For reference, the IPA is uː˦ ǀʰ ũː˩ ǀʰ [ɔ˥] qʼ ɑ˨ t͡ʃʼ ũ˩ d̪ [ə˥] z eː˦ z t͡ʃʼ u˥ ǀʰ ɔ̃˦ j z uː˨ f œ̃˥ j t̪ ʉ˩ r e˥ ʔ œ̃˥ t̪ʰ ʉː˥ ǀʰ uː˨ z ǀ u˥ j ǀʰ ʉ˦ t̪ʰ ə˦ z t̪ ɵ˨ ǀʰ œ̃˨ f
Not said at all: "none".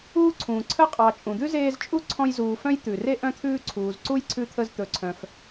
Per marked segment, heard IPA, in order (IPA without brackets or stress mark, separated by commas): ə˥, ʉ˥